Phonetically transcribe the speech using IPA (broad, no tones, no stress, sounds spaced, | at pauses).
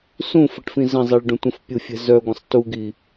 s ũ f ə ʈ f ĩ z ə̃ zˤ i ɭ ɖ ũ tʷ ə̃ f pʲ u fʲ ɛ̤ z œ ɡʷ ə̃ sˤ t u ɡ i